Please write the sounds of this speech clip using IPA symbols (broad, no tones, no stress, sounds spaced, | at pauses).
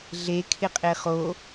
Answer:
ɮ e kʰ ɪ qʼ e χ o